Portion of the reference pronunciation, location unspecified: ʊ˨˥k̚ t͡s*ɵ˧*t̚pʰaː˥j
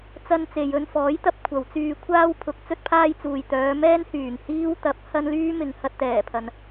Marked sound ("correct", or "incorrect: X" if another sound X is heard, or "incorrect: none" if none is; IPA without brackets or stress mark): incorrect: ɵ˥